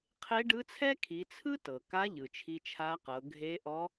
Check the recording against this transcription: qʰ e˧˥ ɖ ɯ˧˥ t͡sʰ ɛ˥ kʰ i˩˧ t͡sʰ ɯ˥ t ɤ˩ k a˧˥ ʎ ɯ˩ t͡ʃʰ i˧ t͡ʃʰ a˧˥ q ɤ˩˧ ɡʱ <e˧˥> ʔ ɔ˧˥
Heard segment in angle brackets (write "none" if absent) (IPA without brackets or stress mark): e˧˥